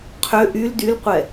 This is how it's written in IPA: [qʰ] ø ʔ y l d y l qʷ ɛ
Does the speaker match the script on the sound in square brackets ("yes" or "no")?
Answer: yes